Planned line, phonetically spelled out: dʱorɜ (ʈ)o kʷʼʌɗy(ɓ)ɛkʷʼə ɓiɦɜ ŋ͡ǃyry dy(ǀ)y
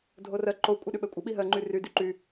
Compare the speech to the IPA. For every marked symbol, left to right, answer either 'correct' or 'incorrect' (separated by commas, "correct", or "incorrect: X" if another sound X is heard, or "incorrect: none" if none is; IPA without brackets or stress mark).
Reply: incorrect: ǃ, correct, incorrect: ǃ